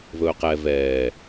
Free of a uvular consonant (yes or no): no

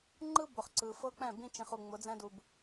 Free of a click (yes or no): no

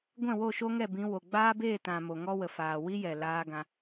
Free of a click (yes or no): yes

